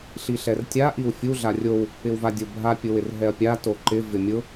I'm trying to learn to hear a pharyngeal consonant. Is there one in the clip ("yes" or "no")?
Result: no